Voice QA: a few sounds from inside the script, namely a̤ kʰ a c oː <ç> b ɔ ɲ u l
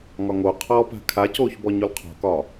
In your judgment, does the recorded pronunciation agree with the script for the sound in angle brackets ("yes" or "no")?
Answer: yes